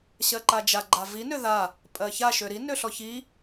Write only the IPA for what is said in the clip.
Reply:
ɕ ɜ ǃ a d͡ʒ a ɡ͡ǃ a v i n ø ð a | pʼ ɜ ç a ʃ ø ɾ i n ø ɬ ɔ ç i

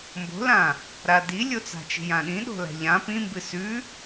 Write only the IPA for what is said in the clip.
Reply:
m b o̤ l ã | ɾ a d i lʲ o t͡s a̤ t͡ʃ i̤ j ã ɗ ĩ ɗ o̤ l a̤ ʎ ã p ĩ m b ɨ s ʉ

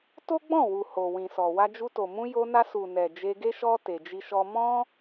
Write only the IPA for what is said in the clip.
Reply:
t o˦ ɡ͡b ɔ̃˦˨ w u˨ h o˨ w ĩ˨ s ɔ˨ w a˧ d͡ʒ u˧ t o˨ m ũ˧ j o˧ n a˧ s u˨ n ɛ˨ d͡ʒ e˧ ɡ e˦ ʃ ɔ˦ t e˧ d͡ʒ i˦ ʃ ɔ˦ m ɔ̃˦

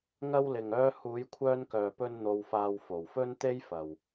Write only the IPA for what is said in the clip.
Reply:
ŋ ɐ˧ w l ɪ˨ ŋ œː˧ h uː˨˧ j kʷʰ œː˧ n k œː˨ p ɵ˧ n n̪ o˧ w f aː˧ w f o˨ w f ɵ˥ n t̪ e˥ j f ɐ˨ w

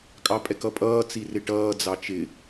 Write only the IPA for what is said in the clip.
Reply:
kʼ ɑ pʼ ɛ k ʌ pʼ ʌː t͡s i r ɪ ʈ ʌː d͡z ɑ t͡ʃ ɪ

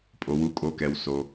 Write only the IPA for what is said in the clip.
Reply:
pʼ o˩ w u˩˧ kʼ o˩˧ k ɛ˩ w s o˩

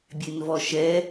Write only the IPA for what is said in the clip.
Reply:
bʲ e n v ɔ ʃ ɛ

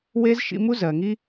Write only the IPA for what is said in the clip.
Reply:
w e˦ z ʃ ḭ˧ m u˦ z ɜ˨ ŋ i˦

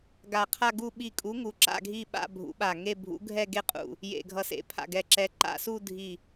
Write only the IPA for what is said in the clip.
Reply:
ɡ a˧˩ qʰ a˥˧ ɡ u˥˧ ɓ i˧˩ kʼ u˨˥ ŋ u˨˥ ǁ a̰˥˧ ɡʱ i˥˧ ɓ a̰˥˧ bʱ ṵ˨˥ ɓ a˧˩ ŋ e˥˧ bʱ ṵ˨˥ ɡʱ ɛ˥˧ ɡ e˥˧ qʼ ṵ˧˩ | j ḛ˧˩ ɡʱ ʌ˧˩ s ḛ˨˥ pʰ a̰˧˩ ɡ ɛ˧˩ ǁ ɛ˨˥ ǃ a̰˥˧ s u˥˧ dʱ i˧˩

